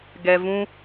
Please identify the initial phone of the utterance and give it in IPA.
ɡ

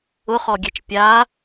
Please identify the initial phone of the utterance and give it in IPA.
ʊ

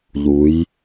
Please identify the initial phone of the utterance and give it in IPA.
ʎ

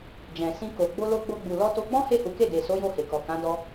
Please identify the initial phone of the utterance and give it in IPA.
d͡ʒ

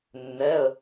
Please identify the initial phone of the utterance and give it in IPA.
nː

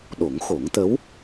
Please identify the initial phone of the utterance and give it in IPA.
ɗ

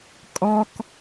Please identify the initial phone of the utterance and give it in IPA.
kʼ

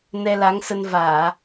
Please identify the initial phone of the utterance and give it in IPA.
n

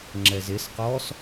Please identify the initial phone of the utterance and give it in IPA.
ŋ͡ǁ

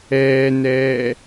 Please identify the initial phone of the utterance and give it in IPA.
ɛː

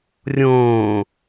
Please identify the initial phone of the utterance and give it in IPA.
rʲ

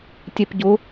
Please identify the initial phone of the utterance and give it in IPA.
tʲ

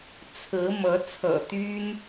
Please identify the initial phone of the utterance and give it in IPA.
t͡sʰ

